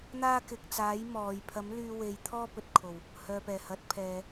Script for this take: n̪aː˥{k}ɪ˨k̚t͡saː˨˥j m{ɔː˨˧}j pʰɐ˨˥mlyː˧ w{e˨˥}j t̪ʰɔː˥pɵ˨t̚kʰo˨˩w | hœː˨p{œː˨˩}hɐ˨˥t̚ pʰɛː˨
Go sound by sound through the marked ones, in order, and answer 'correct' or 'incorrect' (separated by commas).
correct, correct, incorrect, incorrect